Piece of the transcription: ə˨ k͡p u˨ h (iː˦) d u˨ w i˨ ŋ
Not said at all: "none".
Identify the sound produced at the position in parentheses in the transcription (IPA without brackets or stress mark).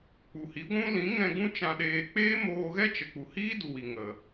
iː˦